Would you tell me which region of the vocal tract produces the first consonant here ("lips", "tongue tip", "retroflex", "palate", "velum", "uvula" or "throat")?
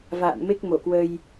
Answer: lips